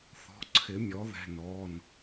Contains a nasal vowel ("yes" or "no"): no